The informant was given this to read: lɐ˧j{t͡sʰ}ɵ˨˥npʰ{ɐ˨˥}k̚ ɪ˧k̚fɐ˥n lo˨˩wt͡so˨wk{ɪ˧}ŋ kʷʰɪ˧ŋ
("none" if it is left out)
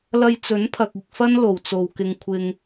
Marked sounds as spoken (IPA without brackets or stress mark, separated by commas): t͡s, ɐ˨, ɪ˧